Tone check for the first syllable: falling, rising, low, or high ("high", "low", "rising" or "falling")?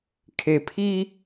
low